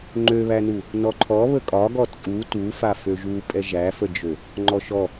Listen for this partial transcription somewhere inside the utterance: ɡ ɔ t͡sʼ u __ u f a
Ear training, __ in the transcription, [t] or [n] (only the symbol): t